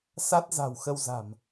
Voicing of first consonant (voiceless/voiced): voiceless